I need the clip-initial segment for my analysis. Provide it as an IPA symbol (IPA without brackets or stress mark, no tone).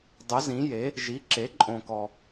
dˤ